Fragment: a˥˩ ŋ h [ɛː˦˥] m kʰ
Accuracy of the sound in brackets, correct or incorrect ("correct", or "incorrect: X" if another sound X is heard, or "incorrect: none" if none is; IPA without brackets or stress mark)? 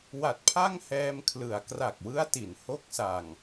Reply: incorrect: ɛː˧